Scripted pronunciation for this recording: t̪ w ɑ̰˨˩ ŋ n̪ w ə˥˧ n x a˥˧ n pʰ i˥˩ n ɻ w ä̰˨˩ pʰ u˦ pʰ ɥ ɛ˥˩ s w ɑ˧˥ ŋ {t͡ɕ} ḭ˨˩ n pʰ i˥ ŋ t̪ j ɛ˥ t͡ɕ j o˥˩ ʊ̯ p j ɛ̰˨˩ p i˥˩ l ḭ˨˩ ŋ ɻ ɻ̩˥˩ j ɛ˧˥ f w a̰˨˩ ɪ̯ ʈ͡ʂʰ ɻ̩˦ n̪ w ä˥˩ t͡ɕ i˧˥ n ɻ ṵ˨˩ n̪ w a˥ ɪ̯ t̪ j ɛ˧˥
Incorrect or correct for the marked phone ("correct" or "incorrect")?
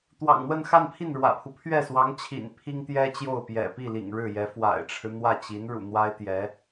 incorrect